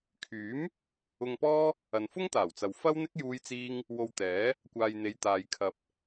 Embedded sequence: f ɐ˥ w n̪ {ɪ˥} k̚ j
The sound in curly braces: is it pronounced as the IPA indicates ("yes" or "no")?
yes